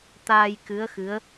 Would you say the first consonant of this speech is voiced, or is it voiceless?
voiceless